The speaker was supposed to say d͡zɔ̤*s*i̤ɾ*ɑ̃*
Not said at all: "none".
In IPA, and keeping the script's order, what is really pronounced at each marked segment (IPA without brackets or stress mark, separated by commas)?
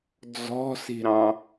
s, ɑ̃